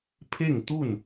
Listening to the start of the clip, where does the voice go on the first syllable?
falling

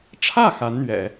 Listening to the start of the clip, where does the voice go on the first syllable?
falling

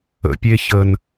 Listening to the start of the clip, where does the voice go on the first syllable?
low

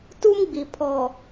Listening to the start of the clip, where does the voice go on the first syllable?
high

